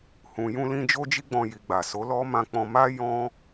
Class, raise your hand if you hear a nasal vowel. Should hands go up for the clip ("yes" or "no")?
yes